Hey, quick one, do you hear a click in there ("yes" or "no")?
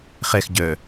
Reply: no